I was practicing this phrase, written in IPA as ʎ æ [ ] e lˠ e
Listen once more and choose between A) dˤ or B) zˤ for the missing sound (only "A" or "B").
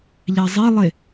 B